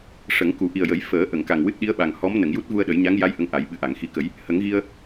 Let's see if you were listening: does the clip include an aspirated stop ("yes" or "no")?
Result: no